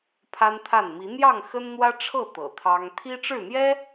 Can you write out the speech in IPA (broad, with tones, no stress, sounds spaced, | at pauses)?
pʰ a˦ n t̪ʰ a˥˨ n m i˨˦ n̪ j ɑ˥˨ ŋ x ə˦ n n̪ w ä˦ ʈ͡ʂʰ ɤ˥˨ t̪ ɤ̰˨˩ t̪ʰ ɑ˦ ŋ t̪ʰ i˦ ʈ͡ʂ ɻ̩˥˨ n̪ j ɛ˦